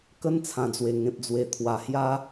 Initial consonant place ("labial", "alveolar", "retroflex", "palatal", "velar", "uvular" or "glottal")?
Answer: velar